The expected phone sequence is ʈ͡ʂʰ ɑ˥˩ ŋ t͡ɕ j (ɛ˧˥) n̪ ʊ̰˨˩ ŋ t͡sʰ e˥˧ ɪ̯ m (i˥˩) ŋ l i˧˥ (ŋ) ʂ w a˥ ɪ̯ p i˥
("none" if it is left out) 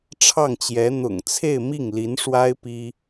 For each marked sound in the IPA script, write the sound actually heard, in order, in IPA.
ɛ˧˥, i˥˩, n

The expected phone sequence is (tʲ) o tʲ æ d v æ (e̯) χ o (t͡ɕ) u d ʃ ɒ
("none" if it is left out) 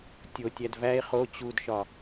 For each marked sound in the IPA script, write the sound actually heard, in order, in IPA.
tʲ, e̯, t͡ɕ

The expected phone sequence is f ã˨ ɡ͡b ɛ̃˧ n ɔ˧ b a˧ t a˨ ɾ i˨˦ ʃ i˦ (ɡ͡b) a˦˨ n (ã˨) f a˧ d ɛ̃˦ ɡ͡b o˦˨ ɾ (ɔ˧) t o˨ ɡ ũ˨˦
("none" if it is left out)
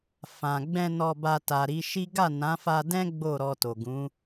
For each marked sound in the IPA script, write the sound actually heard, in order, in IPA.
ɡ, ã˨˦, ɔ˧

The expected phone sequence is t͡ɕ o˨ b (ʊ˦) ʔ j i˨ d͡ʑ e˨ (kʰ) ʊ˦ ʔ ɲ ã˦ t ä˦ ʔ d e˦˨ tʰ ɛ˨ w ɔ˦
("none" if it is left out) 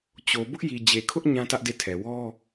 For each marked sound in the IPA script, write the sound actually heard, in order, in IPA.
ʊ˦, kʰ

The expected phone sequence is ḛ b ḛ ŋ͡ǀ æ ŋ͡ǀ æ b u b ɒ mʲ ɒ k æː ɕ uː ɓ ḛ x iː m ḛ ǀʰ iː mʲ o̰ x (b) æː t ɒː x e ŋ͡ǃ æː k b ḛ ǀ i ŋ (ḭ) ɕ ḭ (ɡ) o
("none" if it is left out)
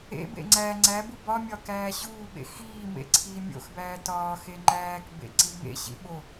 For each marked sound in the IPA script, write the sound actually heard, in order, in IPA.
b, ḛ, ɓ

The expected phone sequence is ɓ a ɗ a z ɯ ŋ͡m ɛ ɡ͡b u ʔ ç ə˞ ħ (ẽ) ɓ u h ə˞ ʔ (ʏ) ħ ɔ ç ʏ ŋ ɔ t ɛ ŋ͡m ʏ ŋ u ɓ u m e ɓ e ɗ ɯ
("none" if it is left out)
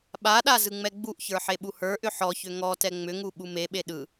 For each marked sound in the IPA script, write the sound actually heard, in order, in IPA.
e, ʏ

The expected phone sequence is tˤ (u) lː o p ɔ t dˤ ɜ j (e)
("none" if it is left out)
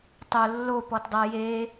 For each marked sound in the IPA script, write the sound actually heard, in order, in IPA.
o, e

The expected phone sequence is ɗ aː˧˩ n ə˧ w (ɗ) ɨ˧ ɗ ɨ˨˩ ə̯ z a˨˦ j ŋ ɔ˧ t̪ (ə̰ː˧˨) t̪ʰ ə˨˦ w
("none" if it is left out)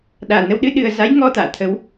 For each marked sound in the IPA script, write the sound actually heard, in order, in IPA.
ɗ, a̰ː˧˨

